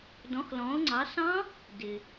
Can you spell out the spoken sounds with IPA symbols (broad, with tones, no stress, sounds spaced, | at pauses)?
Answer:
d ɔ̃˨˦ x l ɔ̃˨˦ ʊ̯ ŋ͡ǀ ɑ˨˦ s ɑ̃˦˥ | d ɪ˩